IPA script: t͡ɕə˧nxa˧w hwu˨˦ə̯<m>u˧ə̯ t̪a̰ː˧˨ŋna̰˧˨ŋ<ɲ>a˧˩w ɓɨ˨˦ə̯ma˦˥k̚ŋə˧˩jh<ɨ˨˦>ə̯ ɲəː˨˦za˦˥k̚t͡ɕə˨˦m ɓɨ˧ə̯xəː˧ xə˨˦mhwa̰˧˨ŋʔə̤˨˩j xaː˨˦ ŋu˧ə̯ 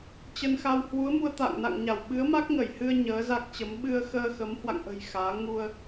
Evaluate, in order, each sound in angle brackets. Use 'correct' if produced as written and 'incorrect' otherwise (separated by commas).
correct, correct, incorrect